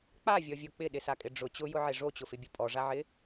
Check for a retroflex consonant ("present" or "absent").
present